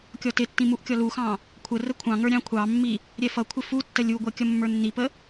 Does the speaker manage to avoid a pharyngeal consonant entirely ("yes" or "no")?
yes